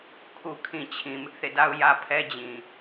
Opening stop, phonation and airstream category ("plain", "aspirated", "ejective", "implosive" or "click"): aspirated